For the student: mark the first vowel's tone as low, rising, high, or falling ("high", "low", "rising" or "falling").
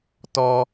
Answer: high